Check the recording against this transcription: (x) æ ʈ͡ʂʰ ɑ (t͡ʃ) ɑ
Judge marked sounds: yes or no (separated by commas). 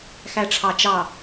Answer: yes, yes